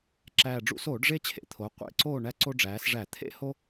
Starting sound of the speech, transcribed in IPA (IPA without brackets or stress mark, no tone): ǁ